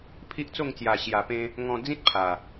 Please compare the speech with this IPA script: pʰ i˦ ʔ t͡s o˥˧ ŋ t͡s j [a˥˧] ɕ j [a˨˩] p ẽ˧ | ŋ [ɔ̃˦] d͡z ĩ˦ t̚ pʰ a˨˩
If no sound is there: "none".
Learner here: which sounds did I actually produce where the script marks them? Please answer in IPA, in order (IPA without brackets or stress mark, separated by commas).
a˨˩, a˨˩, ɔ̃˧